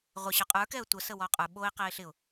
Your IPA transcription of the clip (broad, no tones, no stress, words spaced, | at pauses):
ʁʷɪ ɕə˞qʼə˞kɛə̯ tʷə səwɔqʼə˞ ɓoɪ̯ qɛɪ̯ɬɪʊ̯